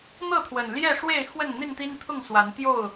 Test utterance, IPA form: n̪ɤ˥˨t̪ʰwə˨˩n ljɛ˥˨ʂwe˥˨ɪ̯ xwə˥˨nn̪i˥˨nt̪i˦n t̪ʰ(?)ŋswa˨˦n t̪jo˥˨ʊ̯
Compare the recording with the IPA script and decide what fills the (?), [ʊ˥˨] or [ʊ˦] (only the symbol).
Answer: ʊ˥˨